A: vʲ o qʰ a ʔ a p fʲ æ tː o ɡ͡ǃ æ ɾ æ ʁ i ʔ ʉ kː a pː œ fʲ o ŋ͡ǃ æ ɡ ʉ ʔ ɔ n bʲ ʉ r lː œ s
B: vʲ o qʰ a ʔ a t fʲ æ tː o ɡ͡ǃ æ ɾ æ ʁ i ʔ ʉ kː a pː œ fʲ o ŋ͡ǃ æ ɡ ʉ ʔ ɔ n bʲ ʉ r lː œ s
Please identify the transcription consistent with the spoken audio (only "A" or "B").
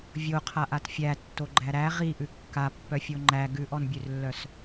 B